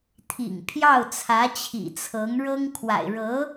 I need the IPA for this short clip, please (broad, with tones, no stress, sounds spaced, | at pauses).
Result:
t̪ʰ ḭ˨˩ ŋ pʰ j ɑ˥˩ ʊ̯ t͡sʰ ä˧˥ t͡ɕʰ ḭ˨˩ t͡sʰ ɤ˧˥ ŋ ɻ ɤ˥ ŋ kʰ w a̰˨˩ ɪ̯ ɻ ɤ˧˥